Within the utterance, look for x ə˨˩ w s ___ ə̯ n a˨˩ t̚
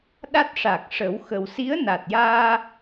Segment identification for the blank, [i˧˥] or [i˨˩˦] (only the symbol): i˧˥